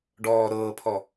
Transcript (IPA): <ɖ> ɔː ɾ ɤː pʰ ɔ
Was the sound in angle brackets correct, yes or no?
yes